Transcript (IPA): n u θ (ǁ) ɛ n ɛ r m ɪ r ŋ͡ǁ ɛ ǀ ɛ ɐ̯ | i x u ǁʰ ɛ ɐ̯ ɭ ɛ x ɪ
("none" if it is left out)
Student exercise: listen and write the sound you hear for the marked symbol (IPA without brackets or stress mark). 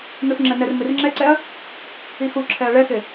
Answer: ŋ͡ǁ